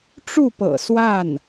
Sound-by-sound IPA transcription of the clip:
ʈ͡ʂ u˥˩ p ɤ̰˨˩ s w a˥˩ n

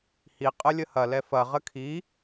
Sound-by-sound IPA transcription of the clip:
h i qʼ ə lʲ ə h ɐ l ɛ f ɐ ʁ ə kʰ i

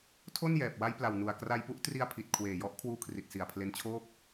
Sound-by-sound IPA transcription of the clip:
tʰ o˥˩ n j ɛː˨˩ p̚ w a˦˥ j p l a˨˩ w n u˨˩ a̯ k r a˧ j p u˦˥ ʔ t r i˧ a̯ pʰ i˨˩ t̚ kʰ w eː˨˩ j ɔ˦˥ ʔ kʰ w uː˧ kʰ r i˨˩ t̚ s i˨˩ a̯ pʰ l e˧ n t͡ɕʰ oː˥˩ k̚

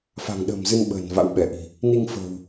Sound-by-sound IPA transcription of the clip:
f a̤˨˩ ŋ ɗ ə̤ː˨˩ m z ɨ˧ n ɓ ə̤ː˨˩ n v a̰˧˥ w ɓ ɛ˧˩ ʔ i̤˨˩ | n i˧ ŋ f ə̤ː˨˩ w

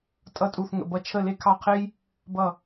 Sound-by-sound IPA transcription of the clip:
tʼ ʌ˥˩ tʼ u˥˩ θ ŋ ə̰˧ b ʌ˥˩ t͡ʃʰ ə˥˩ l e˥ kʰ ɑ˥˩ qʰ e˥ j | b ʌ˥˩

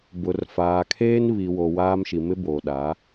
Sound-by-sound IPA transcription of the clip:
b ʊ˨ r f aː˨ kʰ eː˦ n β i˨ w o˨ w aː˦ m ʃ i˨ m ɪ˦ b oː˨ ɗ a˨˦

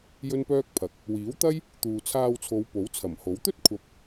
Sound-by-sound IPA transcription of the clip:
j ɵ˥ n p œː˥ k̚ pʰ ɐ˨˥ k̚ | w iː˨˥ w t̪ ɐ˥ j | t̪ uː˨ t͡sʰ aː˧ w t͡sʰ o˨˧ w p o˨˥ w t͡sʰ ɐ˨˩ m h o˨˥ w t̪ ɵ˥ t̚ kʷʰ ɐ˨˥ p̚

